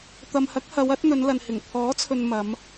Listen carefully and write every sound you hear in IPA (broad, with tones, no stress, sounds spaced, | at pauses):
t̪ ɐ˨ m h ɐ˨˥ k̚ h ɐ˨˧ w ɐ˨˥ t̚ n̪ ɵ˨˧ n l ɐ˨ n h ɪ˨˩ ŋ pʰ ɔː˨˥ t͡sʰ ɵ˨ n m ɐ˨˧ m